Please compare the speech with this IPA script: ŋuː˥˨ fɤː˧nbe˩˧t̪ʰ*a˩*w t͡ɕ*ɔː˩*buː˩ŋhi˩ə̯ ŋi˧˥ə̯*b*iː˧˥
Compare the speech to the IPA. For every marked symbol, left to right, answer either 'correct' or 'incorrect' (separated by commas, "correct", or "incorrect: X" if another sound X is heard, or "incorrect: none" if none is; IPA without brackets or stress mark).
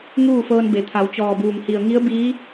incorrect: a˩˧, correct, correct